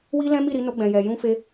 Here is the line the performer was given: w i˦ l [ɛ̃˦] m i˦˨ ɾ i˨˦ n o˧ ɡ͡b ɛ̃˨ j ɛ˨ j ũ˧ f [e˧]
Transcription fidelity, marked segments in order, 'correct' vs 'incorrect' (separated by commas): correct, correct